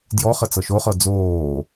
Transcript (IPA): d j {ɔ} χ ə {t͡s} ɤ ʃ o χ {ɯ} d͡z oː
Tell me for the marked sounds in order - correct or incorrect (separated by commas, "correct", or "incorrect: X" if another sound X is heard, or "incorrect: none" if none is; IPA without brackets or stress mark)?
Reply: correct, correct, incorrect: ɤ